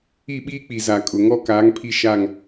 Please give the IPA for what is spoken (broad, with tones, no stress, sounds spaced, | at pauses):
i˦˨ ɓ iː˦ k͡p i˨ z a˨ kʼ ʊ˨ ŋ ɔ˦ k aː˨˦ ŋ pʰ i˦ ʃ a˦˨ ŋ